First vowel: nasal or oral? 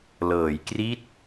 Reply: oral